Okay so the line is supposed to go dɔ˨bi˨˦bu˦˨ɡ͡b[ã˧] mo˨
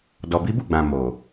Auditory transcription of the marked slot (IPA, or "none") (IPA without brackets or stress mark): ã˨